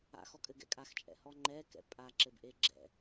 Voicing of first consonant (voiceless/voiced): voiceless